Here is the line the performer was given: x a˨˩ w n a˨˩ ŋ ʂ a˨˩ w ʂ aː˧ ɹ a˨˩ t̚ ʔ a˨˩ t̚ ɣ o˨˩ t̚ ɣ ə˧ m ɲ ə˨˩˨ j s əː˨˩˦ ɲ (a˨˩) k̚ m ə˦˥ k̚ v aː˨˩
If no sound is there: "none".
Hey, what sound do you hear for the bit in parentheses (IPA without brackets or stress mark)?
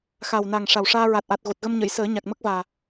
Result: a˨˩